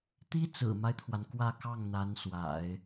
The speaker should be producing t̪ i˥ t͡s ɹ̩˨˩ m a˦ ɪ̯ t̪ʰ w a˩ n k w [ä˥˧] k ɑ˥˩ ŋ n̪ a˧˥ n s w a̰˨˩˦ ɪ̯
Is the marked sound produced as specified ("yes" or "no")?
yes